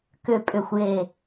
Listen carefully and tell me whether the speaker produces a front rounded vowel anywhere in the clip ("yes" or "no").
yes